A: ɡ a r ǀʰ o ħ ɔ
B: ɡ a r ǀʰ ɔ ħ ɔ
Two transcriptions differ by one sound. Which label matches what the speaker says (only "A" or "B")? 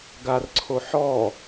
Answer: A